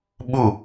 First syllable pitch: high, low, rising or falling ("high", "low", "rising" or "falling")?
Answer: falling